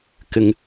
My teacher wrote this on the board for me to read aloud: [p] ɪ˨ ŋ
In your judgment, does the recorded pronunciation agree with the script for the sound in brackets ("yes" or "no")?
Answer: no